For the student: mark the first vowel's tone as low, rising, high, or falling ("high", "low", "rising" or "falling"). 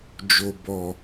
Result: low